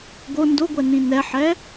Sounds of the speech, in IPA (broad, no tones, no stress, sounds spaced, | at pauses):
ɡ o n d o ɡʷ ɛ n ĩ n ɛ ħ ɛ